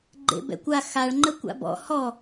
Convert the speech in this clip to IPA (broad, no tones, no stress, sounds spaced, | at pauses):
ɡ͡ǃ ḛ b ɛ̰ kʷ a x a ɭ ŋ͡ǃ ə kʷ a̰ b ɔ̰ h ɔ